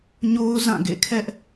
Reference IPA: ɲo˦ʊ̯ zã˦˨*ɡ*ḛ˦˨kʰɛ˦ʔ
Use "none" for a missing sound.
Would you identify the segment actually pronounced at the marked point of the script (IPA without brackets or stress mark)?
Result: ɡ